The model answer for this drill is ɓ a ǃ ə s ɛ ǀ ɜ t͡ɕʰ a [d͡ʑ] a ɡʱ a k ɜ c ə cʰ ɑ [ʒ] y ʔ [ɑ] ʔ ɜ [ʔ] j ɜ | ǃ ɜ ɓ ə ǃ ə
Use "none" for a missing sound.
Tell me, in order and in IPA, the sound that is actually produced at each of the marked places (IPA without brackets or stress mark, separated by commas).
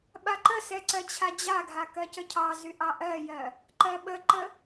d͡ʑ, z, ɑ, none